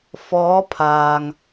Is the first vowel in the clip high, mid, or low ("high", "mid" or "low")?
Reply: mid